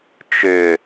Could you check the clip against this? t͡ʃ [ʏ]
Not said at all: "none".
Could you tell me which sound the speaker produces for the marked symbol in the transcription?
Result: ʏ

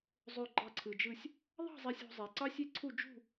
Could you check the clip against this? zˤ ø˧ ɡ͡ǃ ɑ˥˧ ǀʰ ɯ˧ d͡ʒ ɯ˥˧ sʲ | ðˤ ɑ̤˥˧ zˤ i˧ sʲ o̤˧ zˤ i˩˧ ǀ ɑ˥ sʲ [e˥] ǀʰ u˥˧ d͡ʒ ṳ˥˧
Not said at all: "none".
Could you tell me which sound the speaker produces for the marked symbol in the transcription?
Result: e˥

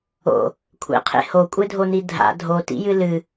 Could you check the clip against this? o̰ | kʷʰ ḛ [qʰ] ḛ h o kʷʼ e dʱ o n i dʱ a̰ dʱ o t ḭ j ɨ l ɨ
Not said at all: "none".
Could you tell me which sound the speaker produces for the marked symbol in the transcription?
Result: qʰ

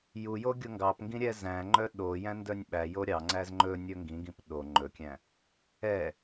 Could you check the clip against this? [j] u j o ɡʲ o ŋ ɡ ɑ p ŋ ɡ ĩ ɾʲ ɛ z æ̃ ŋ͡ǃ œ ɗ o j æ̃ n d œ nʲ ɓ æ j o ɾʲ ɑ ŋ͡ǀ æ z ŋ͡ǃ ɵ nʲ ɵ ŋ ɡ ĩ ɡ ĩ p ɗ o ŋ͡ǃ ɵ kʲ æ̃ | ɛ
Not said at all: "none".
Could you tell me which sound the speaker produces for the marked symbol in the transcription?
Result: j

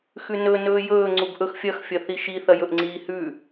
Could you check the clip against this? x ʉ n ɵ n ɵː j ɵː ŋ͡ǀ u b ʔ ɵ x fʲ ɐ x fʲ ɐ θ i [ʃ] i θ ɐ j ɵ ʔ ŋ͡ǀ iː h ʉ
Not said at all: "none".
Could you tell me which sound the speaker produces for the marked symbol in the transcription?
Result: ʃ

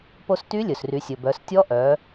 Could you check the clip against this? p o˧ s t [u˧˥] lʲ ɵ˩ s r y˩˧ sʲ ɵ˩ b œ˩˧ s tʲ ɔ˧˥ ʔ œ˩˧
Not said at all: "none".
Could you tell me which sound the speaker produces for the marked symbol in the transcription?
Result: y˧˥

